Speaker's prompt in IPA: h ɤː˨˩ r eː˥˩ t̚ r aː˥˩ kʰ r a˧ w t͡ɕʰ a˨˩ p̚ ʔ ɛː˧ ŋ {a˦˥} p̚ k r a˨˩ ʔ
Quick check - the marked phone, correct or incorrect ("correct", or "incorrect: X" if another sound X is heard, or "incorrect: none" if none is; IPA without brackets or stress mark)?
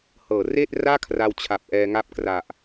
correct